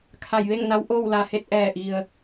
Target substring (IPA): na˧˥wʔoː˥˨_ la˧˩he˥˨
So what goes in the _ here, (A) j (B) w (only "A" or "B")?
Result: B